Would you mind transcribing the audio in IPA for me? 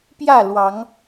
p j ä˥˨ l w ɑ˨˦ ŋ

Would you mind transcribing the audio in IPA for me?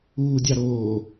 uː dʲ ɑ ɾ oː

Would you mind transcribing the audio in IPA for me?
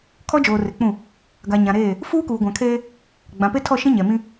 kʰ ɔ˦ d͡ʒ oː˨ r ɪ˨ k͡p ũ˦˨ | ɡ a˨ ɲ ã˨ ɾ eː˦˨ | f uː˦ k uː˨ ɡʷ ã˨ kʰ eː˦ | ɡ͡b ã˨ p e˦ tʰ ɔ˦˨ ʃ ĩ˦ ɲ ɛ˨ m ĩ˦

